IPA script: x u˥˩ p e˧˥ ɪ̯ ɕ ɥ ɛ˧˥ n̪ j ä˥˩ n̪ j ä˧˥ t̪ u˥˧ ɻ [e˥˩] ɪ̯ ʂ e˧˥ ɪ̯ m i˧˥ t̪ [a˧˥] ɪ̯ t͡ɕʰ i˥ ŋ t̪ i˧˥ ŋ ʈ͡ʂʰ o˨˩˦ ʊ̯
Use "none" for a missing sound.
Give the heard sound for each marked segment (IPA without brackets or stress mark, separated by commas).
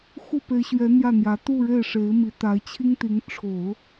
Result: e˥˩, a˧˥